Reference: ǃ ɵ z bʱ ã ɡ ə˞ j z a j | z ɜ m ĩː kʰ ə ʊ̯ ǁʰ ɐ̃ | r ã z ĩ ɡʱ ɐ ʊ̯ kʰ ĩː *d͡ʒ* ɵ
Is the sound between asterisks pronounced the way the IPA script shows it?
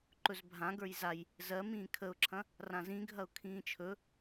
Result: no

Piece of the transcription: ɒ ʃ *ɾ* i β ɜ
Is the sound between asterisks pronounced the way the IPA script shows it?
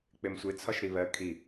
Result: yes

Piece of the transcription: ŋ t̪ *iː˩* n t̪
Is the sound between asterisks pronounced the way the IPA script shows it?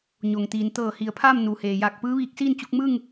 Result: yes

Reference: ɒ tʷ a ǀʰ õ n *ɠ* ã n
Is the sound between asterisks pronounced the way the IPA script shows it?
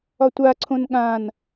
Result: yes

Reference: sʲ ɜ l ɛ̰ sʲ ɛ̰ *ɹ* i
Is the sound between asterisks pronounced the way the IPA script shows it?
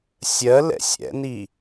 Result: no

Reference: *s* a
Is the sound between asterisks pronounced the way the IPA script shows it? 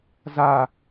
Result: no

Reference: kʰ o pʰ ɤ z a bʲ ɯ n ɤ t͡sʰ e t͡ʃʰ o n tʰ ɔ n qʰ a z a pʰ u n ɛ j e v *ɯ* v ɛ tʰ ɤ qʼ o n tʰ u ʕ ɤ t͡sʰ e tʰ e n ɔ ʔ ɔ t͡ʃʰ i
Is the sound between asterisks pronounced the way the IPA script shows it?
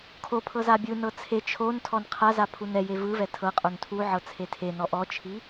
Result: yes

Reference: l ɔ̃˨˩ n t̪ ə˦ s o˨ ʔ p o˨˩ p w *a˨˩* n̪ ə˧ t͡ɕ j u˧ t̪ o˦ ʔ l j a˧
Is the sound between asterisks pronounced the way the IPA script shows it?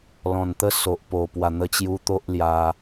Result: yes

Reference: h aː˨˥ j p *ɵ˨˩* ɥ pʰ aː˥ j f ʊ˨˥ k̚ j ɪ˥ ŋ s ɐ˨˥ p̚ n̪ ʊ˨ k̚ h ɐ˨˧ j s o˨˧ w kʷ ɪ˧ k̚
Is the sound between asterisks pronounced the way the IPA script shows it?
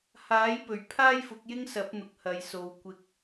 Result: yes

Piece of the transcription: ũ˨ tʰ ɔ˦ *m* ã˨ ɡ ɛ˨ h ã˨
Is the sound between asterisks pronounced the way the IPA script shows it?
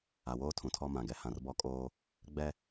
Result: yes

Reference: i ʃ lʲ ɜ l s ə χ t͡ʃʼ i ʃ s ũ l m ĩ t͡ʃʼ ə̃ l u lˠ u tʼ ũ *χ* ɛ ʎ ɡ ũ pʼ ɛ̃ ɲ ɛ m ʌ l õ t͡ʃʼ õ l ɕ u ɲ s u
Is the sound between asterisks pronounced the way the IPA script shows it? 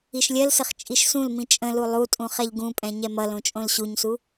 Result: yes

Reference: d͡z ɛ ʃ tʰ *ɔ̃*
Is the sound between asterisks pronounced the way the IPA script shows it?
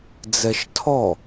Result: no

